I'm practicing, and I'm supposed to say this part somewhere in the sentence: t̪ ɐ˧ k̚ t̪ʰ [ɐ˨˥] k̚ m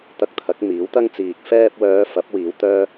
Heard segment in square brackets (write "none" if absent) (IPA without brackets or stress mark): ɐ˨˥